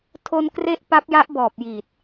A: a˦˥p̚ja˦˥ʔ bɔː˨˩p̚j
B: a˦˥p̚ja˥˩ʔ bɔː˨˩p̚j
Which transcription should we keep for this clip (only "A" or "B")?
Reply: A